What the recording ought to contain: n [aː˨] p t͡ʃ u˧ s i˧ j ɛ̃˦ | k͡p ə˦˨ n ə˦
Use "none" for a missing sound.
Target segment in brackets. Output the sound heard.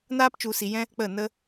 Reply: aː˦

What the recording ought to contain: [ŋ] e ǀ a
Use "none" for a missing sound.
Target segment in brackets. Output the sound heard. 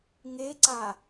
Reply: ŋ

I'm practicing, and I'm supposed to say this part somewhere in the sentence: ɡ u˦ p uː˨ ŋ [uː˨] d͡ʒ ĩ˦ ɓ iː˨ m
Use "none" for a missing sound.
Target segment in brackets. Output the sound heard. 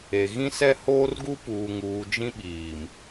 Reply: uː˨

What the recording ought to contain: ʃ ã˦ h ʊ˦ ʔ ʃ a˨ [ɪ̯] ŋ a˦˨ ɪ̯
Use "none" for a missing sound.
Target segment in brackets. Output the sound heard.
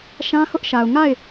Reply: ʊ̯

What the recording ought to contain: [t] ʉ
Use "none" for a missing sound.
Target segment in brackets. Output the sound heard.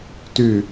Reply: t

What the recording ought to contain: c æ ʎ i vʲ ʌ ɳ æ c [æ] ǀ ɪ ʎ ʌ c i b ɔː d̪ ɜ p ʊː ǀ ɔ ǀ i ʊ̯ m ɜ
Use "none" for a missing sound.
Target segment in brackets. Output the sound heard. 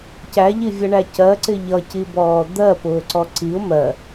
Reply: ɜ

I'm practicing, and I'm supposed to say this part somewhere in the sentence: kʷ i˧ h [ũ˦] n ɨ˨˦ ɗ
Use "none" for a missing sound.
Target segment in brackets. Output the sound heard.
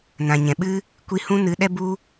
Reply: ũ˦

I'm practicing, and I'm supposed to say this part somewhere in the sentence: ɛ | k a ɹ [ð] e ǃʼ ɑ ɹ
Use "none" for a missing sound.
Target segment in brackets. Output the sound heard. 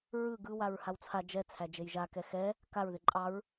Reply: ð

